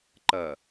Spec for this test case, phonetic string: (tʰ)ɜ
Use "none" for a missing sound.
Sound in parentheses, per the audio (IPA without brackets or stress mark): ǃ